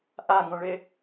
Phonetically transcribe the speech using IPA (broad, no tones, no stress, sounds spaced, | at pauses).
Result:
ʔ a ŋ õ ɭ e